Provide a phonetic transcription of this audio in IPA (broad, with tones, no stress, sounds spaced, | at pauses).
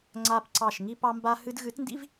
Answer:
ŋ͡ǀ a˦ p ǀ ɑ˦˨ ʃ ŋ i˧ p ɑ˧ m b a˧ h ɨ˧ d ɣ ɨ˨˦ t n d ḭ˦ v